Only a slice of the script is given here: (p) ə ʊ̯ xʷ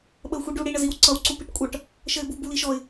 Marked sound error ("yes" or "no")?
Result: yes